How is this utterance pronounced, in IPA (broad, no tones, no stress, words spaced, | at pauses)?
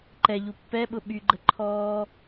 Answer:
ǃɛ ʎupːɛɓʊ ɓyɡ͡ǃəǃʰɔː